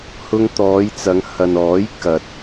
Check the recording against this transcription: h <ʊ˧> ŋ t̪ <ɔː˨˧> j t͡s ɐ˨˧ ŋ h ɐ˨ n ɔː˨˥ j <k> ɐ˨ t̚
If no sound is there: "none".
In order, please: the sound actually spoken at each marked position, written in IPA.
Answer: ʊ˧, ɔː˨˧, k

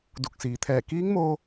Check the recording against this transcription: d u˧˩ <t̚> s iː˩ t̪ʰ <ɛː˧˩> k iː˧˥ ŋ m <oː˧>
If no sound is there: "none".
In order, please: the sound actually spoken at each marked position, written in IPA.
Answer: k̚, ɛː˧˩, oː˧

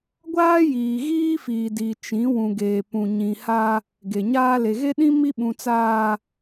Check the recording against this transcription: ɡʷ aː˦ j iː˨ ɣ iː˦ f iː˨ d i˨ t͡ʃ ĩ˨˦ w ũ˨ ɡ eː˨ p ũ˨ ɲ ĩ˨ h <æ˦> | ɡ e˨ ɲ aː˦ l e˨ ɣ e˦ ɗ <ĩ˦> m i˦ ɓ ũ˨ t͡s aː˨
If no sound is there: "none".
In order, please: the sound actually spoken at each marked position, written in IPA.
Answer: a˦, ĩ˦

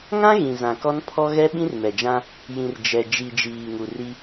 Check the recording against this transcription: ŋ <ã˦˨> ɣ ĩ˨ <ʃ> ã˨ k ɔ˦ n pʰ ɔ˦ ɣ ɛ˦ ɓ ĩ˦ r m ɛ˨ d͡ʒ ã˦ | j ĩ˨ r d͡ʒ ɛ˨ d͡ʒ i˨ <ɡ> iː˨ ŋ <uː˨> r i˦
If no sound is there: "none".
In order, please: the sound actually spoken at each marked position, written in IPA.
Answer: ã˦, z, d͡ʒ, u˨

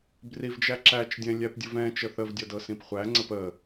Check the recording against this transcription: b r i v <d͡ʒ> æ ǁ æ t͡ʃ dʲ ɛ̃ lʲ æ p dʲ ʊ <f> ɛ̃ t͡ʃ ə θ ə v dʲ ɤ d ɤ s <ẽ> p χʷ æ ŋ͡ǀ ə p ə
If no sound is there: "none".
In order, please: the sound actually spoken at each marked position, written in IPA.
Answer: d͡ʒ, v, ĩ

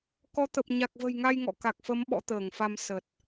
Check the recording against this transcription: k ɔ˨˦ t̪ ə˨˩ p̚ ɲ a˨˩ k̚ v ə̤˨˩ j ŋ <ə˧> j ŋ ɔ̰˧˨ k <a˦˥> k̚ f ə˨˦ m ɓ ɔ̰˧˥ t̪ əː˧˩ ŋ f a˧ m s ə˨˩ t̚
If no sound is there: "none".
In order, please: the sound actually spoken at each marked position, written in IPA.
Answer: a˧, a˨˩

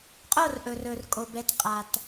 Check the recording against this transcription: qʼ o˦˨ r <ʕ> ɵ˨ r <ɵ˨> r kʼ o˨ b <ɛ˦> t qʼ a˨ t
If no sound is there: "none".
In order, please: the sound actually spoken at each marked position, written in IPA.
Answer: ʔ, ɵ˨, ɛ˨

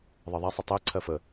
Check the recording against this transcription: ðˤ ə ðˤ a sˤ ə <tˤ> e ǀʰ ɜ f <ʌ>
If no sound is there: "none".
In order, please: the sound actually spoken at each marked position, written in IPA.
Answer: tˤ, ə

